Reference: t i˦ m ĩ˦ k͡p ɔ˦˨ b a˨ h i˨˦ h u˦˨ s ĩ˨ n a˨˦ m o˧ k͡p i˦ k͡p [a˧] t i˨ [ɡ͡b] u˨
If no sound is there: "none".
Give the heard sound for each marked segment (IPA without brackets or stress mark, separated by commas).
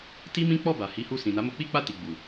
a˧, ɡ͡b